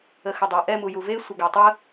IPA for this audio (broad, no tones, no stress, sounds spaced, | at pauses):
ə x ə dˤ a ʔ ɛ m u j u v e sʷ ɪ ɡ a tˤ ə